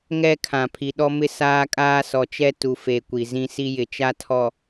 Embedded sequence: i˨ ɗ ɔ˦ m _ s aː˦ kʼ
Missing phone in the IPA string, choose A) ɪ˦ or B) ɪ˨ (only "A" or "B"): A